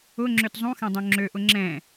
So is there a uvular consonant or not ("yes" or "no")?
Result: no